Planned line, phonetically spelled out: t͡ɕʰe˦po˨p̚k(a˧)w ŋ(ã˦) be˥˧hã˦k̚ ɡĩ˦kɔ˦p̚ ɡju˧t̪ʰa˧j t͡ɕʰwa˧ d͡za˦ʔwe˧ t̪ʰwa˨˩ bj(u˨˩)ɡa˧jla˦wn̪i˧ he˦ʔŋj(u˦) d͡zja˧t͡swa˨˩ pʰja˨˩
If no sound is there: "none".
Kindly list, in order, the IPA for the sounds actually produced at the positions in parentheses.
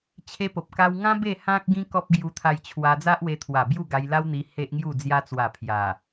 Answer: a˦, ã˦, u˥˧, u˥˧

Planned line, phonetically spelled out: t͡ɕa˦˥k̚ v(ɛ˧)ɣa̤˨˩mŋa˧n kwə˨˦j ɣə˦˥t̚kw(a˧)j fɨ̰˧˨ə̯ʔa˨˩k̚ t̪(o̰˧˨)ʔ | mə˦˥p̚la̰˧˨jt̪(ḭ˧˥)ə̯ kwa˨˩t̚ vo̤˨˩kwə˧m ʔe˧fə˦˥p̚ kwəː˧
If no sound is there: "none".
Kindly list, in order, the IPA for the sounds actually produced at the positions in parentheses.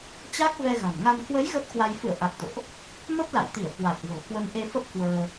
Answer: ɛ˧, a˧, o̰˧˨, i˧˩

